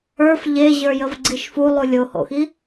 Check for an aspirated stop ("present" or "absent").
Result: absent